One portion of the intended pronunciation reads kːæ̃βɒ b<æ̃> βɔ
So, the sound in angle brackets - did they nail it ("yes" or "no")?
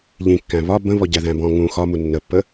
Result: no